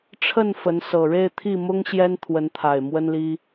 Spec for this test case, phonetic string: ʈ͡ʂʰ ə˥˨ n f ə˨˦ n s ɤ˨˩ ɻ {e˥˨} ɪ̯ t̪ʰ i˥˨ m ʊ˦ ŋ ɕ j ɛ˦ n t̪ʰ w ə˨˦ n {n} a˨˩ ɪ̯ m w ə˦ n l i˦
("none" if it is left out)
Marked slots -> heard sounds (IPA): e˥˨, t̪ʰ

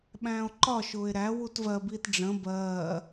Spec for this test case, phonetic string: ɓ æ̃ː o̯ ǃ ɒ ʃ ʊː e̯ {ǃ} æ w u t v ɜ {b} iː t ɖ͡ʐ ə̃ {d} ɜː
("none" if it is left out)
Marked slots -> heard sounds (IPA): ɾ, b, b

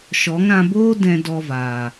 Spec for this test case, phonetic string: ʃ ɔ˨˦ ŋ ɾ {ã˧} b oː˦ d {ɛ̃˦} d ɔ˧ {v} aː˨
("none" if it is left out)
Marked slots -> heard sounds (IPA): ã˧, ɛ̃˧, v

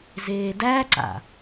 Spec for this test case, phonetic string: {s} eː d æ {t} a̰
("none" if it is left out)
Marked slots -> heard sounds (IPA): z, ǀ

